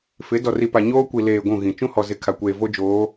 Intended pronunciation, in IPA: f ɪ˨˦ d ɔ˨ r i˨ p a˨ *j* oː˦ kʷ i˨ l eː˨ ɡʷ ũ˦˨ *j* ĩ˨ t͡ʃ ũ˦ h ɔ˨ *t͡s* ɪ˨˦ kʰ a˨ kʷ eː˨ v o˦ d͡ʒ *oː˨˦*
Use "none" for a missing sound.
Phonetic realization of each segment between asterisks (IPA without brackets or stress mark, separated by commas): ɲ, ɣ, z, oː˨˦